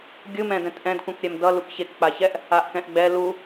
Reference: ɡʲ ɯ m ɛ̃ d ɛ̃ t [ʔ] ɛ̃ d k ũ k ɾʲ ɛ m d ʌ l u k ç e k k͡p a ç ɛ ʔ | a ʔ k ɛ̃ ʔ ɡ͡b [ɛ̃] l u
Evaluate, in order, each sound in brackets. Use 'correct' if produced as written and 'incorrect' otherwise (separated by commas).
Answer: correct, incorrect